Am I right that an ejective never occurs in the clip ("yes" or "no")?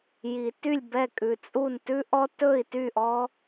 no